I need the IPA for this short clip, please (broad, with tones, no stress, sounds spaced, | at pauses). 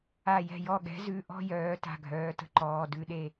a˧˩ j ɛ̤˧˩ j ɔ˧˩ ɠ ɛ̤˨˥ z ʉ˩˧˩ ʔ ɔ̤˥˨ j œː˨˩˦ t a̤˩˧˩ ɡʱ œː˩˧˩ t ə̤˥˨ ǃ ɔː˩˧˩ d ʉ˥˨ ɗ e˥˨